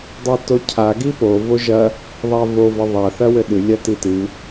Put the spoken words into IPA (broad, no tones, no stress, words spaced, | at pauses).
dˤatocʰa ɡipo voʒɐ | ðˤavo vɐðˤa θɐwɘɗɨ lʲatitɨ